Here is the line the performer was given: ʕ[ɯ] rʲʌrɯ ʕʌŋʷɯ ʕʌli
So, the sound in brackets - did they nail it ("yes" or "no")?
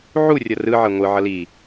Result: no